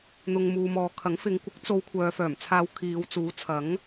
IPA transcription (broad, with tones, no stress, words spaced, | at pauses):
n̪ʊ˨ŋ muː˨mɔː˨kʰɐ˨˥ŋ fɪ˨˧ŋkʷɪ˨˥k̚ t͡so˨˧w kʷʰœː˨fœː˨˩mt͡sʰaː˨˧w kʰiː˨˧wt͡suː˨˥t͡sʰɐ˨˥ŋ